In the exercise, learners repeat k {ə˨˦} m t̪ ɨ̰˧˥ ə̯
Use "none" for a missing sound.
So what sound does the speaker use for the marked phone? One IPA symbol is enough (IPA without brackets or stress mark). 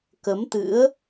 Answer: ə˨˦